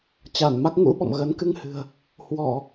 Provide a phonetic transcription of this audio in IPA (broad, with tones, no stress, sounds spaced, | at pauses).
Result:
t͡ɕ a˧˩ n m a˦˥ k̚ ŋ ṵ˧˥ ɓ ɔ̰˧˨ m ɣ ə˨˦ n k ɨ˧ ŋ h ɨ̤˨˩ ə̯ | h w ɔ˧˩˨